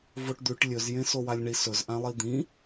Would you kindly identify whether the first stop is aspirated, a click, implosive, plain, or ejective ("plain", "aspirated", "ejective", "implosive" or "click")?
plain